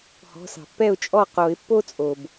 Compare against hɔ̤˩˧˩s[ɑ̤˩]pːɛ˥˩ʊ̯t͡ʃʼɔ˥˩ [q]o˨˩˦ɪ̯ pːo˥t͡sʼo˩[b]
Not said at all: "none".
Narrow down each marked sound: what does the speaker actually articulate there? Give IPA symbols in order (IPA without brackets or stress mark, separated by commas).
ɑ̤˩, q, b